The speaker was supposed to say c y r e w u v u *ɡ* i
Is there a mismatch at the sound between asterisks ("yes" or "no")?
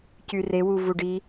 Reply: yes